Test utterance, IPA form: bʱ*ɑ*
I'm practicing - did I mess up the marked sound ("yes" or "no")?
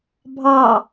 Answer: no